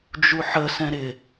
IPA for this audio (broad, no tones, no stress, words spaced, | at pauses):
d͡ʒuħə sɛ̃ɾɪ